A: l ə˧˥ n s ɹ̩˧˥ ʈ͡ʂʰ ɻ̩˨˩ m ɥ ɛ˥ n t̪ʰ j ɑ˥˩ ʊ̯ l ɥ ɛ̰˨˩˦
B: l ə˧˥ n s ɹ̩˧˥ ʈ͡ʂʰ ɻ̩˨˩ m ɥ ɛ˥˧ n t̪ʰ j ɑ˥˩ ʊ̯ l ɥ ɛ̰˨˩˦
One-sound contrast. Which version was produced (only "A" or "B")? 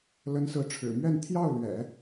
B